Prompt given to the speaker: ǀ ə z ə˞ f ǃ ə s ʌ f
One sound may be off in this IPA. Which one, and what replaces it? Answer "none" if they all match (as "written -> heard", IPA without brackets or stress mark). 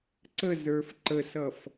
none